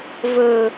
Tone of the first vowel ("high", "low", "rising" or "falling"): low